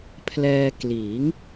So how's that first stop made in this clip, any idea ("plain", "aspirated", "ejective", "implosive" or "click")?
aspirated